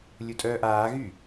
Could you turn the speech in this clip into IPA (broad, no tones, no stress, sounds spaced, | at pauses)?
lʲ u tʼ œː ʔ aː ɣ y